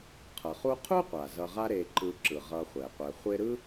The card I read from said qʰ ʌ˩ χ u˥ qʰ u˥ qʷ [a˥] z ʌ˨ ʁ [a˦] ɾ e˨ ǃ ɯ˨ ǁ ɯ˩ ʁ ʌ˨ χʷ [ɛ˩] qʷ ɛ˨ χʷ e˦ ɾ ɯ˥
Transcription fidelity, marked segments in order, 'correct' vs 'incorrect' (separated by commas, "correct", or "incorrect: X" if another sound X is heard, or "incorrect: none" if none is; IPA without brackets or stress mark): incorrect: a˩, correct, correct